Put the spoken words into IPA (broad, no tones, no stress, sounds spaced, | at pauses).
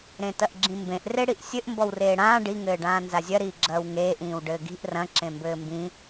ɾ ẽ t ɐ ʔ ɡ͡ǁ ĩ m b ẽ ʔ r e ɽ i ʔ sʲ ɘ ʔ m b ɔ w r eː ɽ ãː ɖ i ŋ ɘː ɖ ãː n z a zʲ ɐ ɾ iː ɡ͡ǁ ɐː w ŋ eː ʔ ĩː w ɖ ɘː ɡ i̤ ʔ r ɐ̃ ǁ ẽ m b ɘː m b ĩ